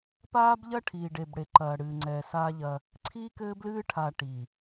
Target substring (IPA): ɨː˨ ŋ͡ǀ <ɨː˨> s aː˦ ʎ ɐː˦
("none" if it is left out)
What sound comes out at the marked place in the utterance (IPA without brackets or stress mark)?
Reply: ɛː˨